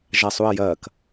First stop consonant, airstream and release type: plain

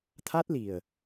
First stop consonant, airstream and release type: aspirated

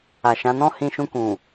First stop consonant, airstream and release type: plain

